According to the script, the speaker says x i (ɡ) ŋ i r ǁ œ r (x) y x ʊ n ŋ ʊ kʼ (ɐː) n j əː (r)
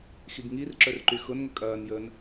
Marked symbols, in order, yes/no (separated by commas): yes, no, yes, no